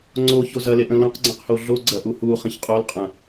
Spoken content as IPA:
ŋ͡ǀoço zɐleʔə̃ lõqɡ͡ǀɐ̃qho ɮoɡ͡ǀɐʔu huχə̃ç qʼolqʼɐ̃

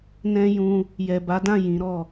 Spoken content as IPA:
nɛ̃˦jũ˧ | jɛ˨ba˨˦dã˦˨ jĩ˨˦ɾɔ˦˨

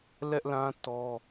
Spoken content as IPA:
lɛ˦ʔlã˦ tɔ˦

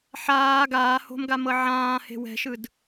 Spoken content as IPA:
ħaː ɡaːho̤mɡa mɤʕãːhe̤ wɛ̤ʃɯd

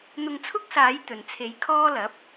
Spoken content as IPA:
n̪ʊ˧ŋt͡sʰʊ˥k̚saː˨˥j t̪ɵ˨nt͡sʰe˨˥j kʰɔː˥lɐ˨˥p̚

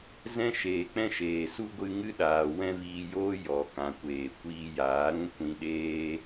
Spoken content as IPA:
zɛ̃˦ ʃeː˨k͡pɛ̃˦ʃeː˨ su˦ɡʷɨ˧ ŋɨ˦ɗaː˨ wɛ̃˦viː˧joː˦ jɔ˨ kã˨kʷeː˨ kʷiː˧jaː˨˦ɾũ˦ kʷĩ˧ɗeː˦

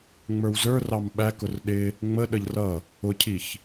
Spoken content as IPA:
ŋ͡mə˞wzə˞rɑm ɓækʊr ɗɪ | ŋ͡mə ɗəʎrʌ | ʊcʰiç

